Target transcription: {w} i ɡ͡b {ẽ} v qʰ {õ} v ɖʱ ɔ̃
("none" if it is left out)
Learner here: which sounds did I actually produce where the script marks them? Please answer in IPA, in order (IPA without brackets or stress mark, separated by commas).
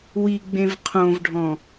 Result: w, ẽ, õ